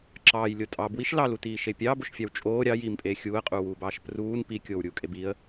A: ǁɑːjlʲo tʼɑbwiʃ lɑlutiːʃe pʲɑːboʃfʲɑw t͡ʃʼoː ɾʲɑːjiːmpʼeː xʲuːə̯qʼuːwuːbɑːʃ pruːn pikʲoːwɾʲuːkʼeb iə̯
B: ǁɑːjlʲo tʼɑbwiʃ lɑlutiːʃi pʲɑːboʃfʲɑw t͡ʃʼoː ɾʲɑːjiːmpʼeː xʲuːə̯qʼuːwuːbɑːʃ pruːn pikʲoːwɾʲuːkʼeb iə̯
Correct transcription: A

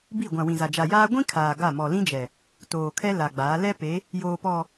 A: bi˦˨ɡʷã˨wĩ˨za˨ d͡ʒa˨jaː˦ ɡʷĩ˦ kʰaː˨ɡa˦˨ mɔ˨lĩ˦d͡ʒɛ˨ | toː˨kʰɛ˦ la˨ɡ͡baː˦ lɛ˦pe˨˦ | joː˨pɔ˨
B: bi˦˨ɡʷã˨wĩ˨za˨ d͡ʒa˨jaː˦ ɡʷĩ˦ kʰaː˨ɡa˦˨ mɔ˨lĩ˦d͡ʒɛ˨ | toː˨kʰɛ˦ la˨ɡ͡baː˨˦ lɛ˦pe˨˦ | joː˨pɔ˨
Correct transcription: B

